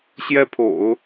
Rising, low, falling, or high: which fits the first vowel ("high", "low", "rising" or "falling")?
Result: high